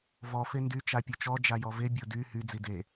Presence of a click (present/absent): absent